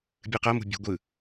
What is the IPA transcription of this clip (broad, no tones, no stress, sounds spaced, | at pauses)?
bʲ ɯ q ɤ m ṳ bʲ ṳ ɡʷ ɯ